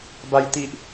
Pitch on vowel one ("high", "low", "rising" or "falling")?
high